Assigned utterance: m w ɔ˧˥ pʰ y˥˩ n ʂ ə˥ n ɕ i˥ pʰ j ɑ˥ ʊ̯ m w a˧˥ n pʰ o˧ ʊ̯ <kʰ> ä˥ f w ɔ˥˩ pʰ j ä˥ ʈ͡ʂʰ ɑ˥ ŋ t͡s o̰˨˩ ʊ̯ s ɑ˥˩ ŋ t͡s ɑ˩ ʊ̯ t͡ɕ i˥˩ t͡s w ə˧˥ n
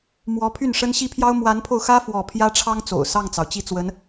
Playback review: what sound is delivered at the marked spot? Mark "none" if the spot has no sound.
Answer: x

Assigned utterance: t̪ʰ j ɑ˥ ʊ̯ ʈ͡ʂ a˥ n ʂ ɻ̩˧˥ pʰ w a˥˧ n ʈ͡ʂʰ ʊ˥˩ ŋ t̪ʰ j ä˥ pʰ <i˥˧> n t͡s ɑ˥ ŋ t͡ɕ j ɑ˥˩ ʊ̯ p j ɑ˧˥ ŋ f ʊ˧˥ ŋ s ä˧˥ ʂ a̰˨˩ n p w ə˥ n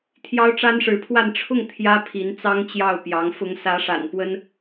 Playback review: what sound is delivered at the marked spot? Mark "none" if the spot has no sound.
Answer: i˧˥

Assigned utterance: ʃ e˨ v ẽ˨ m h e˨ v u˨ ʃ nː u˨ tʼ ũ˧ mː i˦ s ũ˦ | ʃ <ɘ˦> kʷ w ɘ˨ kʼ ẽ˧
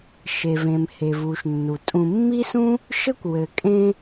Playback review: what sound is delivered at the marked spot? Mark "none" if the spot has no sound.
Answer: ɘ˦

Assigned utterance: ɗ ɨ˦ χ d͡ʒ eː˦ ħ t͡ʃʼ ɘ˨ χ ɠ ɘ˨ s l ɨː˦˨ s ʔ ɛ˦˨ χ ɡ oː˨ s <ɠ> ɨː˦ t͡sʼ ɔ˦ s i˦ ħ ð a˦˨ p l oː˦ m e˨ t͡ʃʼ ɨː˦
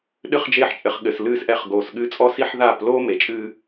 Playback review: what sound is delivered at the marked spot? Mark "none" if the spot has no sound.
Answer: ɠ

